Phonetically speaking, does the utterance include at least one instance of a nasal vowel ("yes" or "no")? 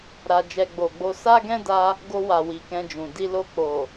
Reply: yes